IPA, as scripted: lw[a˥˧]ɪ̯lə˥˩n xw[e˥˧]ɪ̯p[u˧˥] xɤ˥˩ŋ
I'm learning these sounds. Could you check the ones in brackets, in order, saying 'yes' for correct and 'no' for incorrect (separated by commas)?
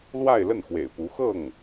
yes, no, yes